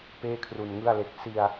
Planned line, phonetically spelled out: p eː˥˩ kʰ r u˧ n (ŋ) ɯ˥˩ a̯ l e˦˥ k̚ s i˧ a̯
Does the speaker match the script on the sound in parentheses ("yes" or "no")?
yes